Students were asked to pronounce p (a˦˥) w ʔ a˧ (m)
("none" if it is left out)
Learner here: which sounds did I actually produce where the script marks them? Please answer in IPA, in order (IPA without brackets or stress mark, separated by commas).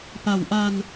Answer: a˩˦, n